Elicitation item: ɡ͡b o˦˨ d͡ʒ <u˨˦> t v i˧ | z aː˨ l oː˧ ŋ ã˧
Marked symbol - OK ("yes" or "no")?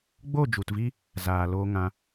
no